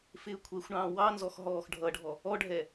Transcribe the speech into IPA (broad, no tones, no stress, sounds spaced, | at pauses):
f ɪː kʷʰ ɛ xʷ ɳ ɑ̃ː w ɑ n z ɔ x ɦ ɔː x ɖʱ ʌ ɖʱ ɔ | ɔ ɖʱ ɛ